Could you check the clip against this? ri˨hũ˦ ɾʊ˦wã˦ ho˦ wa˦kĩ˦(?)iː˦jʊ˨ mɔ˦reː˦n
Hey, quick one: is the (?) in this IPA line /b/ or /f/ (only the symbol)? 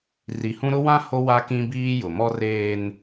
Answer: b